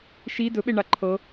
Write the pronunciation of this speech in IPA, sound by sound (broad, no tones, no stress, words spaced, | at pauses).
ʃi dɵɓe ɳaǃʰɤ